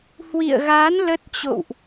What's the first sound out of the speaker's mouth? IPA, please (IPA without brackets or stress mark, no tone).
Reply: h